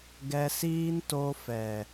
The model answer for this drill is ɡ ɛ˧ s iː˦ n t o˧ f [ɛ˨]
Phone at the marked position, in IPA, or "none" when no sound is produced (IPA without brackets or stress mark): ɛ˨